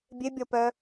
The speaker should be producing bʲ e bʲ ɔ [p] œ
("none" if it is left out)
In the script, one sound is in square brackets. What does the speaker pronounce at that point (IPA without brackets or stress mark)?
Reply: p